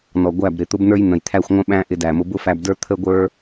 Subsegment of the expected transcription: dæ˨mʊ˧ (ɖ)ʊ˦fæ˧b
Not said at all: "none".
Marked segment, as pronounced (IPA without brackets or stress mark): b